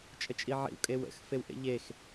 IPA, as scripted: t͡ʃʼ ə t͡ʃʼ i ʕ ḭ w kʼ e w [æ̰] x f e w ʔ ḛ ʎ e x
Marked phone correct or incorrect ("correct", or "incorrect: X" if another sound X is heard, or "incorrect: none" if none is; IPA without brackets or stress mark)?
incorrect: ə̰